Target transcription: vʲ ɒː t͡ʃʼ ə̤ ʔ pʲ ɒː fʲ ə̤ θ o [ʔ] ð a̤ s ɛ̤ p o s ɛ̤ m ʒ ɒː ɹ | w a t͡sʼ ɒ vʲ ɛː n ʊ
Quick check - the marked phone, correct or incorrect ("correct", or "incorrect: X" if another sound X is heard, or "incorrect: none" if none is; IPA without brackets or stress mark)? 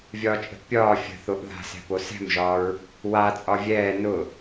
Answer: correct